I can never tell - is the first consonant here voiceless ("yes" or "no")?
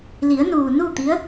no